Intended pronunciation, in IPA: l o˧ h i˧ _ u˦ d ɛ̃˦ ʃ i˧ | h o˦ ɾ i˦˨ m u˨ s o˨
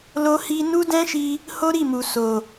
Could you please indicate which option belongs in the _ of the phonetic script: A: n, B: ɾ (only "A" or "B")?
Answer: A